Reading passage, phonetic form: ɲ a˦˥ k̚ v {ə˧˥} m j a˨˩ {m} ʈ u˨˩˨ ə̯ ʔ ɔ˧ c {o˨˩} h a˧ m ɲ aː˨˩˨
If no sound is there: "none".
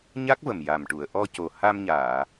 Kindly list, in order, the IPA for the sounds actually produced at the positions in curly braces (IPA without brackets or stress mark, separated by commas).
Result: ə˨˩, m, o˨˩